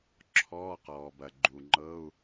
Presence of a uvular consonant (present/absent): present